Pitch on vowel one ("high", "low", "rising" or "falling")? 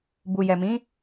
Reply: low